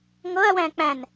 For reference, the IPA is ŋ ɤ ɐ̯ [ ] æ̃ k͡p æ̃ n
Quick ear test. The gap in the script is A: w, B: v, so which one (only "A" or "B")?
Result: A